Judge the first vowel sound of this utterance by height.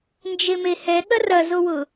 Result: mid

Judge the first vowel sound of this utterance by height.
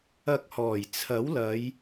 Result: low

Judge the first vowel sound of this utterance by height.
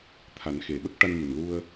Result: low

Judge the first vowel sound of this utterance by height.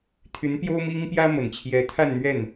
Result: high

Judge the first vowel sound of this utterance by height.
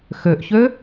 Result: mid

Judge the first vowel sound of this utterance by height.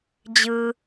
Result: high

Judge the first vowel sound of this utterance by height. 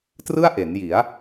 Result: high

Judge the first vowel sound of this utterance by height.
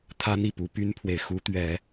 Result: low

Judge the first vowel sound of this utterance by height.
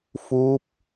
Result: high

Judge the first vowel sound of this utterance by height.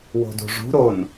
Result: mid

